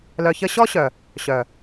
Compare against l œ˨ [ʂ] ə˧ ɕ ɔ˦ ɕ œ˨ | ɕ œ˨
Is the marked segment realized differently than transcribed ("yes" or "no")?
yes